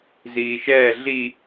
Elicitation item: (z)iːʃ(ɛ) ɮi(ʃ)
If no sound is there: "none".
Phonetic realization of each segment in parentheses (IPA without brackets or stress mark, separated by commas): z, ɛː, none